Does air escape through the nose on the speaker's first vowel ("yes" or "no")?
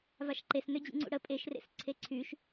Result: no